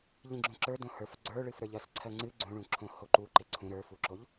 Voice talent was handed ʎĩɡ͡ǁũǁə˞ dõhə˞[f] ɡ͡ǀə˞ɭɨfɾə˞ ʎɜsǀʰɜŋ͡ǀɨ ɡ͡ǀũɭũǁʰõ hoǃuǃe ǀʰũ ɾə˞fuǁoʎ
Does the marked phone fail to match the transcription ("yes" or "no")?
no